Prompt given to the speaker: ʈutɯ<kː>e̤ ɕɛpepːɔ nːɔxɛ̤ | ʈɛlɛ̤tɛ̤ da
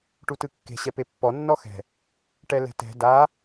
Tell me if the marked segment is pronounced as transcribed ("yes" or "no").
yes